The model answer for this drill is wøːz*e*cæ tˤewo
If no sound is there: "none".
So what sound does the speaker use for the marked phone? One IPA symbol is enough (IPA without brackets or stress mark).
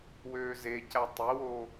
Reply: e